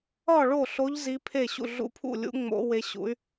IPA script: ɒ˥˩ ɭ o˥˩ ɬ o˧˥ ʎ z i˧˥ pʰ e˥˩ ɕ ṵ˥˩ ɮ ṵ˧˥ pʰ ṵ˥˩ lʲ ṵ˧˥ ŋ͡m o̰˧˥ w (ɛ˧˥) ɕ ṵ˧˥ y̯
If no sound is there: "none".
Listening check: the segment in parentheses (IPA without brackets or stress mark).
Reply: e˧˥